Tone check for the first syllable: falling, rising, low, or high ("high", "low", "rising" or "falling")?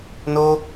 high